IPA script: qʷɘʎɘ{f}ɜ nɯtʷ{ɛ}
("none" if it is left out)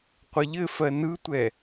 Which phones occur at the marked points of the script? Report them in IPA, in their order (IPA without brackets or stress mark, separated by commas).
f, ɛ